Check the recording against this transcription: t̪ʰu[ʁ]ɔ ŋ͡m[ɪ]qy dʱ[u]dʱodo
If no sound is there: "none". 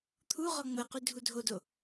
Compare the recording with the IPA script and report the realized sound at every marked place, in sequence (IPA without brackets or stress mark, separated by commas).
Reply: ʁ, ə, u